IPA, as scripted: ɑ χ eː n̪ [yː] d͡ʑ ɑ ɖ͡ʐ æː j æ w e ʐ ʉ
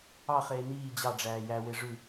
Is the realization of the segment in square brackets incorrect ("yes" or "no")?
yes